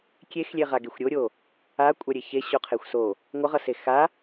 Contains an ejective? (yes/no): yes